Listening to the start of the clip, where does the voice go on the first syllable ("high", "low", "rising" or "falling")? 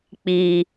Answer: low